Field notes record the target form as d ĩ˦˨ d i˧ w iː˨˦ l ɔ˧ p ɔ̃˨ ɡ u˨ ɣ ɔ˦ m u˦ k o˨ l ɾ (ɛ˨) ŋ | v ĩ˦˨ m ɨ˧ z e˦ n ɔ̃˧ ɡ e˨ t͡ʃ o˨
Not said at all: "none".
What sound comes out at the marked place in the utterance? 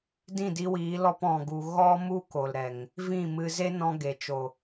ɛ˨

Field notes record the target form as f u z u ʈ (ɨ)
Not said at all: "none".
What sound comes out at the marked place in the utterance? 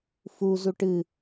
ɨ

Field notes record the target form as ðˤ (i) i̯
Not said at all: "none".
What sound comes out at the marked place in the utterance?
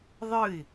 ɨ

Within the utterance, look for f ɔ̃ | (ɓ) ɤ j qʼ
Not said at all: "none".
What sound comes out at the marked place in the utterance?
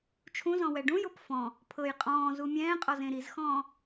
pʰ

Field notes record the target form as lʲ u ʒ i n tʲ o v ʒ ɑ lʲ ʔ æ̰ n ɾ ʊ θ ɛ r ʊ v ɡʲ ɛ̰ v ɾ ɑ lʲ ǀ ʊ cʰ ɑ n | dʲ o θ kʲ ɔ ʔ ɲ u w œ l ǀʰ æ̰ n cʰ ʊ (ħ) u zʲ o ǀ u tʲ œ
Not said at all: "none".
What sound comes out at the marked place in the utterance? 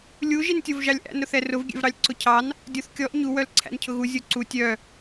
ɣ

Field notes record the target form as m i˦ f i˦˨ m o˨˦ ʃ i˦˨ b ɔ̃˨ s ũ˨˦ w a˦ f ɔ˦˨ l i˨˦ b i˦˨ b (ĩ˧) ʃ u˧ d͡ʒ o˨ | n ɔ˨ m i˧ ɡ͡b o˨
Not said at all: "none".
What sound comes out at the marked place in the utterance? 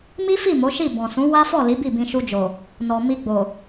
ĩ˧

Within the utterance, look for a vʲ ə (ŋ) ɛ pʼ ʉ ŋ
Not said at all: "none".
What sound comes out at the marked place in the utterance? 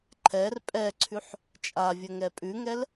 ŋ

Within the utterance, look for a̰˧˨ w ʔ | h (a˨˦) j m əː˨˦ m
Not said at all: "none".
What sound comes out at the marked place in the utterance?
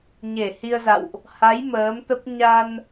a˨˦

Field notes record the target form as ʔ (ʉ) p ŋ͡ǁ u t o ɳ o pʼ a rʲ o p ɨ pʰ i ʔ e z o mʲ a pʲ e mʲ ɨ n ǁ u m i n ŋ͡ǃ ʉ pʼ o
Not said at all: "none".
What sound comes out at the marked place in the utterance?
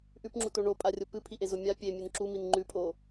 ʉ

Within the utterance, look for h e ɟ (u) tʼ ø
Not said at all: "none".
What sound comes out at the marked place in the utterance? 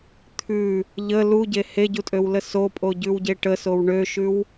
u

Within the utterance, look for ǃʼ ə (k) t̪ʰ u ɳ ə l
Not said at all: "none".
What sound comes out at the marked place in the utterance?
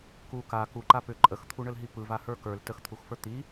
x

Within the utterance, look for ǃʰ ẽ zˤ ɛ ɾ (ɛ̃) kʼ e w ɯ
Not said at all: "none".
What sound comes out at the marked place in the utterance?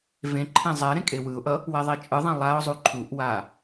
ẽ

